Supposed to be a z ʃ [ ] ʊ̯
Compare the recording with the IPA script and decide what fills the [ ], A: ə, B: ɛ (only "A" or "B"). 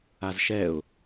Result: B